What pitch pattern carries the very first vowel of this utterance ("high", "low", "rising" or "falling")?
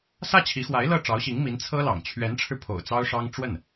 falling